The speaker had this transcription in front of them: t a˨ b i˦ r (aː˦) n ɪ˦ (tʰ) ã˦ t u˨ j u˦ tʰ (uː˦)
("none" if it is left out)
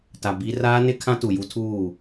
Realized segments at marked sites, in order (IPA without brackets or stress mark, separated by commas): aː˦, kʰ, uː˦˨